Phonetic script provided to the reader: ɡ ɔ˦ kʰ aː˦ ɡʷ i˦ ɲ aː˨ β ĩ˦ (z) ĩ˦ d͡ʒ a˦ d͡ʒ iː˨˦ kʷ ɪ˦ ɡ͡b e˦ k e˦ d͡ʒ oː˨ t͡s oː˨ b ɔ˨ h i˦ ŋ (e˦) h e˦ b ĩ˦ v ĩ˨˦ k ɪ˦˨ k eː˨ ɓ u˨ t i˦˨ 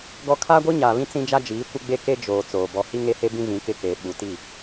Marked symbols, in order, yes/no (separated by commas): no, yes